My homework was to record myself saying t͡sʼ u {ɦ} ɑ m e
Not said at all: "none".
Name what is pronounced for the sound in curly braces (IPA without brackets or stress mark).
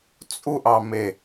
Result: ʔ